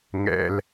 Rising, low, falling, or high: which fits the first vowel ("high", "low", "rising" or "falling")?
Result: low